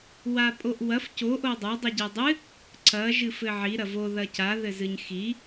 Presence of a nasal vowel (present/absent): absent